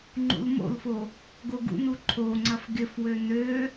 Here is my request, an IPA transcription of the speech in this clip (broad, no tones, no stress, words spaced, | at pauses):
ŋ͡ǃṵlmo̰lfo | ɡoɡṵnu ǃʰoŋ͡ǀɐf ɡɪfwø nø